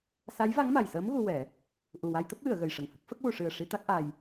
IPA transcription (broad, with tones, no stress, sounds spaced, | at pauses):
s a˧˥ j v a˧˥ ŋ m a˨˩ j s əː˧˥ m ɣ u˧ w ɛ˨˩˦ | ʔ u˨˩ w a˧ j t̪ ə˦˥ k̚ w ɨ˨˩˨ ə̯ ɣ ə˨˩ j ʂ ə˨˩ ŋ h ə˦˥ k̚ f ə˦˥ k̚ w u˨˩˨ ʂ ɨ˨˩ ə̯ ʂ i˧ t̪ a˦˥ k̚ ʔ a˧ j